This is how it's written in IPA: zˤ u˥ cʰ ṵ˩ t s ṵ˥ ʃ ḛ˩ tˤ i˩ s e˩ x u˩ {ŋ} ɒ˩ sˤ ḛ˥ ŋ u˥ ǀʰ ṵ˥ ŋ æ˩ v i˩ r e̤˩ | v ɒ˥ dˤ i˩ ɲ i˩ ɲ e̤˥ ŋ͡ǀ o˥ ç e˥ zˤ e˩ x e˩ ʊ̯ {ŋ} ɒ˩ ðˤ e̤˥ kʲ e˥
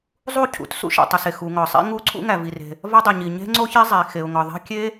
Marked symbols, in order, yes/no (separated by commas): yes, yes